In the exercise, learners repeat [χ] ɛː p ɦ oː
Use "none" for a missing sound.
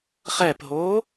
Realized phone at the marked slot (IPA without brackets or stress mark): χ